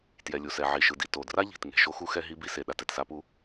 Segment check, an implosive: present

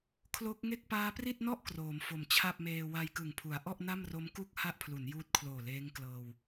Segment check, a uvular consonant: absent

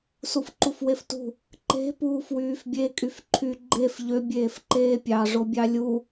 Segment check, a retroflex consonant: present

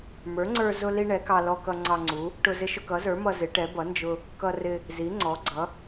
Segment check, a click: present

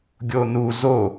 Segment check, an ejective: absent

